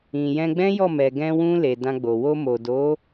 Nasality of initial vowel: nasal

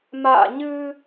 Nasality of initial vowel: oral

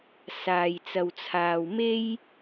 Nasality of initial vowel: oral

